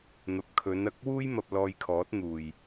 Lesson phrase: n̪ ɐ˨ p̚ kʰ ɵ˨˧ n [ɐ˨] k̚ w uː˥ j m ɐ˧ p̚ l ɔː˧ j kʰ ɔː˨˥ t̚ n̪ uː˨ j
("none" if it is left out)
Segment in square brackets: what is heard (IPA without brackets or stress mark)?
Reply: ɐ˨